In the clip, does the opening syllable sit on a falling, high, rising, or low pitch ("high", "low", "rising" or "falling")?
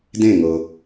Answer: falling